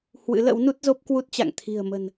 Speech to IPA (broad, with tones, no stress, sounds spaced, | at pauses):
h w ɨ̰˧˥ l ə̰˧˥ w n u˦˥ t̚ z o˦˥ p̚ k w u˦˥ t̚ t͡ɕ a̰˧˨ ŋ t̪ʰ i̤˨˩ ə̯ m ə̤˨˩ n